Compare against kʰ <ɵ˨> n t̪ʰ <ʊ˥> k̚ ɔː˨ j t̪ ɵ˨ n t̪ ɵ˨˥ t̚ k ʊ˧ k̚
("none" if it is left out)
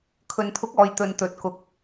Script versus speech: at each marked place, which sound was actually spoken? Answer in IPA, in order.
ɵ˨, ʊ˨˥

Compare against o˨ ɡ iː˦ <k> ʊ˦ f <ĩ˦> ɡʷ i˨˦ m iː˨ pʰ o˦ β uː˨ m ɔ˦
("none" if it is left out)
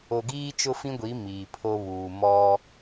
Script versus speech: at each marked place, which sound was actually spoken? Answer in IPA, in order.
t͡ʃ, ĩ˦

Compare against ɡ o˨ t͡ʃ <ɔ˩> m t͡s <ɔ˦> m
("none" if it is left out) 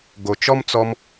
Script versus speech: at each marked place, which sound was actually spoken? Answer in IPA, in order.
ɔ˥, ɔ˦

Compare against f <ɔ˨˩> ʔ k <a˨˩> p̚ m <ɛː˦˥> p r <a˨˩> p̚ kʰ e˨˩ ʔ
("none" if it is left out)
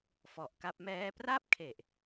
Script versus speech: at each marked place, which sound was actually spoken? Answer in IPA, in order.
ɔ˨˩, a˦˥, ɛː˦˥, a˥˩

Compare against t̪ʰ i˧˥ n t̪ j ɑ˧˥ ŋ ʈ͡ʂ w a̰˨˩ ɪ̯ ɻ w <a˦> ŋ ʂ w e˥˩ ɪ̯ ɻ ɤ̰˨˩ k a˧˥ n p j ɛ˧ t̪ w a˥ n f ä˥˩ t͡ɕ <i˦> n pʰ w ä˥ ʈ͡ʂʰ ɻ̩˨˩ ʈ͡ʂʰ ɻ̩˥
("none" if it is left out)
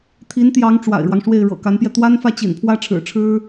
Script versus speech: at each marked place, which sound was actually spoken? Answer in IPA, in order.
ɑ˦, ḭ˨˩

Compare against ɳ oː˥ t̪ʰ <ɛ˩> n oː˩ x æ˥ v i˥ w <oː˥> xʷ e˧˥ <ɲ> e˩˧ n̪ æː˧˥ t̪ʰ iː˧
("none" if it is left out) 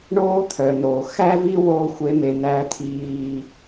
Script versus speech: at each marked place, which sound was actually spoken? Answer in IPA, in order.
œ˩, oː˥, m

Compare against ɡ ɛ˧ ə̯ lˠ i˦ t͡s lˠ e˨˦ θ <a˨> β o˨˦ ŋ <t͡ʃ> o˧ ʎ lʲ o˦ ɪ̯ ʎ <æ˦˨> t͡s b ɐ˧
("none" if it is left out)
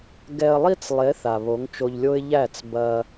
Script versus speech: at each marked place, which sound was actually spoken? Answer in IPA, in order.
a˨, t͡ʃ, æ˦˨

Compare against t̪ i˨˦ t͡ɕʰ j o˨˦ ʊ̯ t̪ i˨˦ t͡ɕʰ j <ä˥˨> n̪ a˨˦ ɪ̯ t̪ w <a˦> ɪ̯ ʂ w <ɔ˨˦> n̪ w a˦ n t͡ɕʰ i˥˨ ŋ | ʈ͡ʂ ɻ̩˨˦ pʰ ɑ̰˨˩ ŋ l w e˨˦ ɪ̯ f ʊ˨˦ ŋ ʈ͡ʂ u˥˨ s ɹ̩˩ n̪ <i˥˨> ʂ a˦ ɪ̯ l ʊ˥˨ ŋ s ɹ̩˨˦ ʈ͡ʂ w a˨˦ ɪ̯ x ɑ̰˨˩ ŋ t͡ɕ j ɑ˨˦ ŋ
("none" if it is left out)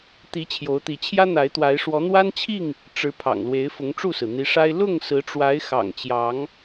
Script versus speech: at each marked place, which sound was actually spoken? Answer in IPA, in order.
ä˦, a˨˦, ɔ˨˦, i˨˦

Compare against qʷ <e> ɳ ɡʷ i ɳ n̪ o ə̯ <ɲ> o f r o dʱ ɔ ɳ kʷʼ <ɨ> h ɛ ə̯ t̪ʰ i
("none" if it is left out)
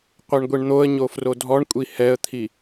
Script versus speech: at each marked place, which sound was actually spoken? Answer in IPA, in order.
e, ɲ, i

